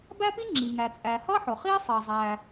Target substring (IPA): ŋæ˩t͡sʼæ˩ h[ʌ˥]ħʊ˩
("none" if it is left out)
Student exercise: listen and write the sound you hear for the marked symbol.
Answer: ʌ˥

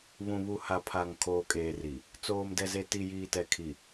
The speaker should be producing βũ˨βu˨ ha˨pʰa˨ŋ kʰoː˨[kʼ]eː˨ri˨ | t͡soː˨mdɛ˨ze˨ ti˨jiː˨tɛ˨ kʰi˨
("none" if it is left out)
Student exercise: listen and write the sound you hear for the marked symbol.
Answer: kʼ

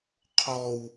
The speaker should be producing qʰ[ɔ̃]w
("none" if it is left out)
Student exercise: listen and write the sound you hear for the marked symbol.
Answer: ɔ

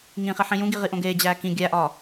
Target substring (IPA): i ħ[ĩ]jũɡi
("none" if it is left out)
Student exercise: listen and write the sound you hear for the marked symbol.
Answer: ĩ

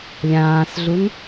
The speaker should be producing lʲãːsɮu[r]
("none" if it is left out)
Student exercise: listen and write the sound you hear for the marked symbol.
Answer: n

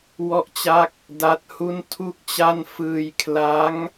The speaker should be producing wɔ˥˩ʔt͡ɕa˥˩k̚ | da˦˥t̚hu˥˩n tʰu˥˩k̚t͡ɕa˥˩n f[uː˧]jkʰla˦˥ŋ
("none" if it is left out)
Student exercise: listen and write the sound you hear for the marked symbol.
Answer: ɯː˧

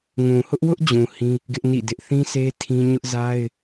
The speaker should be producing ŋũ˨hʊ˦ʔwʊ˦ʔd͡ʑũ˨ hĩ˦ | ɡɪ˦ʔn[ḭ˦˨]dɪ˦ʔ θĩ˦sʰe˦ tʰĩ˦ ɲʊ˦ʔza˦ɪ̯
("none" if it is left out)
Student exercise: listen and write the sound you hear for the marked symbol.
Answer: ḭ˦˨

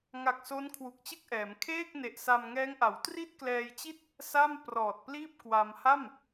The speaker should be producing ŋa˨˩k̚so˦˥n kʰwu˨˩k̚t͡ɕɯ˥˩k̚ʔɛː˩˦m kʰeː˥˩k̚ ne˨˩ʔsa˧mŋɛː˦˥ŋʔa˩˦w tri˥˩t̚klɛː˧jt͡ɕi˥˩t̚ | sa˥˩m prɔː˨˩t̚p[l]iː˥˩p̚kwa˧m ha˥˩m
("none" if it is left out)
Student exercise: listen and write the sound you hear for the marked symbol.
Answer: l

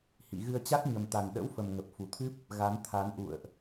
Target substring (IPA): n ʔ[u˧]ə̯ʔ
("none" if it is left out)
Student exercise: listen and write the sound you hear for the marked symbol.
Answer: ṵ˧˨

